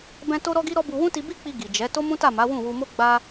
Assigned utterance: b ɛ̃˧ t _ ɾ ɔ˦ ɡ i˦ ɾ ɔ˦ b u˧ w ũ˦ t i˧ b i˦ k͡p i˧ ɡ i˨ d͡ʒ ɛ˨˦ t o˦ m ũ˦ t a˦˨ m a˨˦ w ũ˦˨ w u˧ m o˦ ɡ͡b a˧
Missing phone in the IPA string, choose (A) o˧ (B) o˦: B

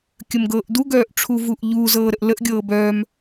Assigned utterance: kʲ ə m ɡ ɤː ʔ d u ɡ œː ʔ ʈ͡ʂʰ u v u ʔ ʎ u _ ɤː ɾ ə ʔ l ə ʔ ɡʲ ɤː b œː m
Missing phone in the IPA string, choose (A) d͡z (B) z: B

